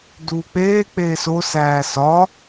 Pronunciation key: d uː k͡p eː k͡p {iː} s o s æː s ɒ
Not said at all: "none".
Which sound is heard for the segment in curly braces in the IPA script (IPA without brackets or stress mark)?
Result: eː